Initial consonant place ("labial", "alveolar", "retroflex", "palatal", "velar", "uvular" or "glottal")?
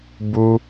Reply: labial